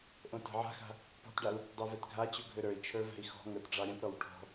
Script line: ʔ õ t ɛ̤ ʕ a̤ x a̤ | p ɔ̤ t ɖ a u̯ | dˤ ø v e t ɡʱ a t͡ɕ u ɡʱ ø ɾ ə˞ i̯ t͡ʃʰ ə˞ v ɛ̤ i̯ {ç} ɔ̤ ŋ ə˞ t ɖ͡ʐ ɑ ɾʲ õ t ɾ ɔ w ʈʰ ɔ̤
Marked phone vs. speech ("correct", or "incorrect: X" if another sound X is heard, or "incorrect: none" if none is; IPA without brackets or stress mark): incorrect: x